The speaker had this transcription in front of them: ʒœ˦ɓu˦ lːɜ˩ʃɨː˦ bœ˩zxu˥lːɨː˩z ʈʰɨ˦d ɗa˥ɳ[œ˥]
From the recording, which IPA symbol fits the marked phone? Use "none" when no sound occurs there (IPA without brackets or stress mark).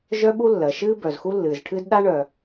œ˩